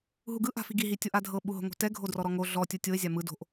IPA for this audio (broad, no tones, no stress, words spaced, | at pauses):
ɦuɡɯ ʔa̤fiɡi ɦitʲoʔadʱɤ ɓuɦo̤ŋo̤tɛ ɡʱodrɔɾɔŋo ɮɔ tʲutʲoɪ̯ zʲamɯ do̤ʔ